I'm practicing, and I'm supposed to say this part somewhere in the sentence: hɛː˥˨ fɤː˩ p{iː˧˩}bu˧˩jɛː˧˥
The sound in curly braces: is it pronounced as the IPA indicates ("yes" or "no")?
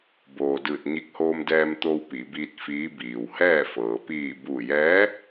yes